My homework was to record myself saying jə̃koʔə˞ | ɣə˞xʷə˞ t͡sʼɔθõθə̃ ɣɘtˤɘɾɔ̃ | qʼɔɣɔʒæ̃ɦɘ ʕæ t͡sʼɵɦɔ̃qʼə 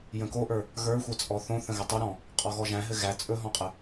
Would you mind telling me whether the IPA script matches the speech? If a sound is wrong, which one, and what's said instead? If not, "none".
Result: ʕ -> ɣ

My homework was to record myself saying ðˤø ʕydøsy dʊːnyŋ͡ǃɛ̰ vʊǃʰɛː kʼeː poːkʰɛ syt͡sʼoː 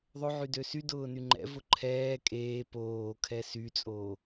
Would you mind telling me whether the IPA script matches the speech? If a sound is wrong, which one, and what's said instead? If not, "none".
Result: none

